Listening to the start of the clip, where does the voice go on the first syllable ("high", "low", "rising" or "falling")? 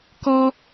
high